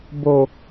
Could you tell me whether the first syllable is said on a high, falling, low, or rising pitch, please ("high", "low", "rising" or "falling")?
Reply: low